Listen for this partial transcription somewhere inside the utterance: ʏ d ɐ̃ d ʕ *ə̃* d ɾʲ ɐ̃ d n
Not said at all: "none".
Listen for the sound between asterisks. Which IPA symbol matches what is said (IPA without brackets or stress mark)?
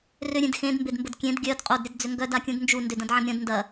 ɐ̃